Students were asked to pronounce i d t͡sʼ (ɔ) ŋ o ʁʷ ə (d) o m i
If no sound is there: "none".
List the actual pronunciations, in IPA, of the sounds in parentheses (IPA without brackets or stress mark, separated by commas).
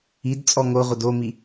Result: ɔ, d